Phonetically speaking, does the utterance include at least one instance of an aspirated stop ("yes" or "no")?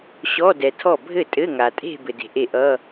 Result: yes